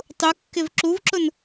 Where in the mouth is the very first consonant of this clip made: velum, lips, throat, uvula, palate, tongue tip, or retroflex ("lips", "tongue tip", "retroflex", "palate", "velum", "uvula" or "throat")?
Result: tongue tip